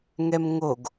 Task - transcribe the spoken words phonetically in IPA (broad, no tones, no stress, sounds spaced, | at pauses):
ŋ ɛ m ŋ o ɡ